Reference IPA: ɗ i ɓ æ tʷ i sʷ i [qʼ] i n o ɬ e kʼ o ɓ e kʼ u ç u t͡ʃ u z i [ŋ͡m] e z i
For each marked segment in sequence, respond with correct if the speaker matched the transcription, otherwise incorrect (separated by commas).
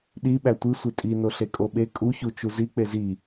incorrect, incorrect